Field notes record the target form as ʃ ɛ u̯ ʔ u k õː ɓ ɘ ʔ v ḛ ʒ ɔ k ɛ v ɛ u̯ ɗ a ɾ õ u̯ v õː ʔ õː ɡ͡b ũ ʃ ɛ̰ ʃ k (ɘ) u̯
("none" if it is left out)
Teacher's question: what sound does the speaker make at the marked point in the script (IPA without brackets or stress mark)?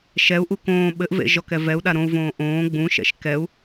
ɛ